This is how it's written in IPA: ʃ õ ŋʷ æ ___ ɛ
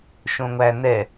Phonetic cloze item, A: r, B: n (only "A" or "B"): B